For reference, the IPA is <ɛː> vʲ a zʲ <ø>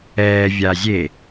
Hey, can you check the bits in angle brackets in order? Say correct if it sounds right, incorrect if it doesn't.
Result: correct, incorrect: e

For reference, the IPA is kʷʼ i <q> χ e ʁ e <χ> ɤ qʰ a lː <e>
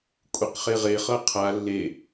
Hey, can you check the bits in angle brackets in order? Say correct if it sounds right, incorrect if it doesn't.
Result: correct, correct, correct

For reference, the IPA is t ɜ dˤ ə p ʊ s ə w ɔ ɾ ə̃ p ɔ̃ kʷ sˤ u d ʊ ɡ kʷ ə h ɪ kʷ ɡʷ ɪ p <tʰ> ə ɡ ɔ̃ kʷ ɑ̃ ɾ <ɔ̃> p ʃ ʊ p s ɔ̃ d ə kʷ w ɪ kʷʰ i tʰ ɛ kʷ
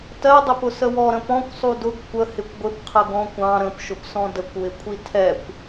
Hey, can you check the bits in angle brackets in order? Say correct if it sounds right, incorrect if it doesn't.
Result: incorrect: qʰ, incorrect: ə̃

